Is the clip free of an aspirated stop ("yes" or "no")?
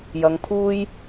no